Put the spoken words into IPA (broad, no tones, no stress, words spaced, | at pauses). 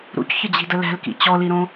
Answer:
ɾṵcçəd͡ʑi̤də lɛ̤lkḭ t͡ɕɔliɾõ